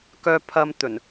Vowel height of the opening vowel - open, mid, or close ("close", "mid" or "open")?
mid